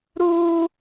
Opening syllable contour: high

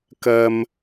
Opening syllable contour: high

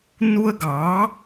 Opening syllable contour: high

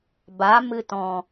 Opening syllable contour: rising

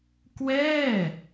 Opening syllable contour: falling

